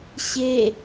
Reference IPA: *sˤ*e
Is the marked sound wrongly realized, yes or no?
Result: yes